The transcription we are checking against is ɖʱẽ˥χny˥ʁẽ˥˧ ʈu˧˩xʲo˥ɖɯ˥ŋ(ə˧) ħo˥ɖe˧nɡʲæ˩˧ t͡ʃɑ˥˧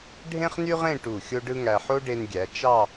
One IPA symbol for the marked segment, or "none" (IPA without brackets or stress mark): æ˧